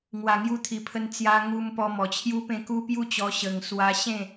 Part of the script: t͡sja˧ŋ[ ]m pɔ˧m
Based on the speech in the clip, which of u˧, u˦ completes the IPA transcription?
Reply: u˧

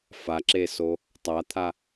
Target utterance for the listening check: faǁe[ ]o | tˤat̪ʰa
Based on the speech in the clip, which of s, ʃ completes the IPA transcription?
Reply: s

